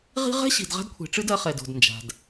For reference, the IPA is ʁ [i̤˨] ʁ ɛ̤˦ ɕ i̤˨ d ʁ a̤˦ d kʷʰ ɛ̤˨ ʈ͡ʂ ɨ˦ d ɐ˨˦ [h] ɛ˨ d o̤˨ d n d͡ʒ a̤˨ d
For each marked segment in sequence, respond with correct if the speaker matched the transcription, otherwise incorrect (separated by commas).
incorrect, incorrect